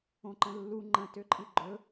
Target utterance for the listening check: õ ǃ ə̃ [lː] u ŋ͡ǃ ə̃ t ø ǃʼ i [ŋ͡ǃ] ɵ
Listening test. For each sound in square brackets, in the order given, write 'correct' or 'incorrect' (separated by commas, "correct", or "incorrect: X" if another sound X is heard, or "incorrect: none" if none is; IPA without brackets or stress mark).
correct, incorrect: ɡ͡ǃ